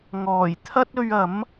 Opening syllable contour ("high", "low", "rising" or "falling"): low